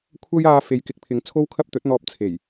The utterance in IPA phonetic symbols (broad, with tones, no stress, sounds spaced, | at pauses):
kʷʰ ɐ˥ j aː˧ f e˨˧ j k ɪ˨˥ k̚ pʰ ɪ˨˧ ŋ t͡sʰ o˥ w kʰ ɐ˥ p̚ t̪ ɵ˨˥ t̚ n̪ ɔː˧ p̚ t͡sʰ e˨˩ j